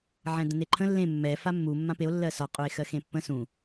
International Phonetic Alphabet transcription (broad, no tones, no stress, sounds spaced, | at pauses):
ʕ ɛ̃ d ə̃ n e ǃʰ ə̃ lː ẽ mː ɛ f a mː u mː ã p e o̯ lː ɜ s ɒ qʼ u e̯ x ɜ x ẽ pː ə̃ s ũ